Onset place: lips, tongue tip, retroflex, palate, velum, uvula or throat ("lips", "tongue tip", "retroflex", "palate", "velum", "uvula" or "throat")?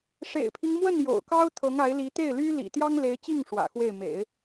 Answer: retroflex